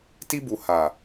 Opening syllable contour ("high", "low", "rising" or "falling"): high